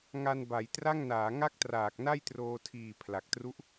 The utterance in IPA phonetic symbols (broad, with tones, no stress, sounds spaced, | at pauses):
ŋ a˧ n b a˩˦ j t r a˥˩ ŋ n aː˩˦ ŋ a˥˩ k̚ t r aː˨˩ k̚ n a˥˩ j t r oː˧ tʰ iː˨˩ pʰ l a˨˩ k̚ t r u˦˥ ʔ